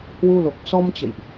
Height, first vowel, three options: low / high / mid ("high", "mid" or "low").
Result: high